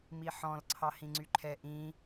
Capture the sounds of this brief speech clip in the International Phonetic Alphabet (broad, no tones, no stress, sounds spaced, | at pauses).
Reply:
m i ħ ɔ̃ l ǀʰ ɑ h ĩ ŋ͡ǀ y ǃʰ ɛ ʔ ĩ